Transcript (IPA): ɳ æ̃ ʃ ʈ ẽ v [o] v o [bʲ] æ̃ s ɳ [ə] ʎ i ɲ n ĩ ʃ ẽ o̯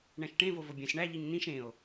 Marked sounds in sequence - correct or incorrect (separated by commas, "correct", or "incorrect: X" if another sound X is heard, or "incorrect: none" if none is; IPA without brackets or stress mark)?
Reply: correct, correct, incorrect: æ